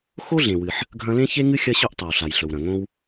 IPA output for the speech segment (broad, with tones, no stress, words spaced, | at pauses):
xo˥ɮẽ˩wɨ˩ħ | ɡʱɐ̃˥ lẽ˥çe˥ŋɨ˥ xʲɐ˥ɕɵ˥ʔtˤɐ˩w ɬa˩jɬɵ˩wɾɐ̃˩ ŋõ˥w